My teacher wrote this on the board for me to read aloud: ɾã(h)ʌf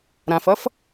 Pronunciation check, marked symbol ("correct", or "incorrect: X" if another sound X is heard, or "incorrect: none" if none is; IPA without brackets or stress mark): incorrect: f